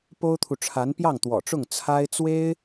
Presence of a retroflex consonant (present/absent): present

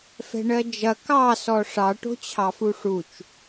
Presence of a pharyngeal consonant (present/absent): absent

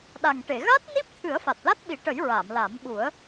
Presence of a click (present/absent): absent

